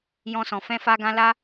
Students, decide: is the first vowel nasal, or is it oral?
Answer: nasal